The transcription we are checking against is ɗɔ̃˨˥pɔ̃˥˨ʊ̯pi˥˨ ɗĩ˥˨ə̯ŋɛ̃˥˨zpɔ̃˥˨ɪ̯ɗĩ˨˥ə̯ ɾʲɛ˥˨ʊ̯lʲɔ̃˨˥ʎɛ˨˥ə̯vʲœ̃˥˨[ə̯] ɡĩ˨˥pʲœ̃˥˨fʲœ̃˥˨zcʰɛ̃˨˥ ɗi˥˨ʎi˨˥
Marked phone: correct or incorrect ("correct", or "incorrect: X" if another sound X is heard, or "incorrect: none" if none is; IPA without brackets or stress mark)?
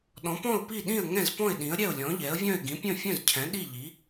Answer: incorrect: ɪ̯